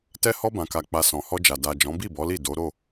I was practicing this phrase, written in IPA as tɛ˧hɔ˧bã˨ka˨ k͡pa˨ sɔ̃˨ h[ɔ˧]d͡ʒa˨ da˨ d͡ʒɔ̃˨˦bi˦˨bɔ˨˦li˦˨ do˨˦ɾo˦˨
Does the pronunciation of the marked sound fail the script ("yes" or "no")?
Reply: no